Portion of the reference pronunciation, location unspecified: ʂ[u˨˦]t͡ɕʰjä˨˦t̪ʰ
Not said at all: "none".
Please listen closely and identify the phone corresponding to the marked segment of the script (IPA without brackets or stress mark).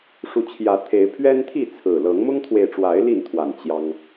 u˨˦